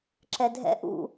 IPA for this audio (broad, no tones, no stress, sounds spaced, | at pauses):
ǁ ɛ dʱ ɛ̰ ʔ ṵ